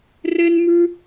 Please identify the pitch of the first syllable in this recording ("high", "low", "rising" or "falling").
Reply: high